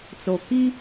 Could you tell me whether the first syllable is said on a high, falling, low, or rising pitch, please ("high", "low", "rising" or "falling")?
low